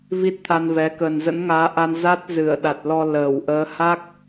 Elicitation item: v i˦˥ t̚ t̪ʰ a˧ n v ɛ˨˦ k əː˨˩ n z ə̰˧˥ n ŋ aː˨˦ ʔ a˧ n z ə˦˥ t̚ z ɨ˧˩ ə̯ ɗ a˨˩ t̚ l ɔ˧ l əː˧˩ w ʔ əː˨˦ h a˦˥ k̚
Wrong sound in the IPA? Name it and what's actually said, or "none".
ə˦˥ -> a˦˥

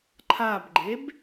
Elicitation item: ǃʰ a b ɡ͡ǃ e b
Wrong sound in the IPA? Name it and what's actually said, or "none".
none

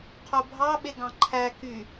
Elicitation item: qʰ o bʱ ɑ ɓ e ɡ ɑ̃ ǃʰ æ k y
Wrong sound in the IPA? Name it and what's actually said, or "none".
none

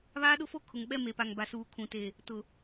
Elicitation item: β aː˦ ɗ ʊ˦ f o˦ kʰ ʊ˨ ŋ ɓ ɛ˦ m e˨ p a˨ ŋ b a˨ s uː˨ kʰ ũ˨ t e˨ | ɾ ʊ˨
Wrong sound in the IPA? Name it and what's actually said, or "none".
ɾ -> t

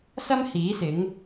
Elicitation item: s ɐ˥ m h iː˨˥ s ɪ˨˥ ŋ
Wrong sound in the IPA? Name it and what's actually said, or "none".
none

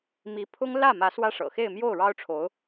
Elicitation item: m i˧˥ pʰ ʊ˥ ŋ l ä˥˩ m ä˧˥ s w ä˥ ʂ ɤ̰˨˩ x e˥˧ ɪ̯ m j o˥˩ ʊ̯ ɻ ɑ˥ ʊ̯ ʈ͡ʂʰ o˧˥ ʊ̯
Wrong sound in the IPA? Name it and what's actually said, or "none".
none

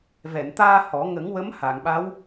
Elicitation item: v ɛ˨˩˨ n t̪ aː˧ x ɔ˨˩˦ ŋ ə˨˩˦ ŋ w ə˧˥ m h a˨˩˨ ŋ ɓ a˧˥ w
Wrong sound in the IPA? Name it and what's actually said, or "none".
x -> h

